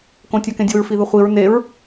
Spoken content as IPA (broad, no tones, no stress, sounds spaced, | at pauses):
k õ tʲ a k ẽ dʲ o ɹ f i ð ə χʷ i ɹ n e ɹ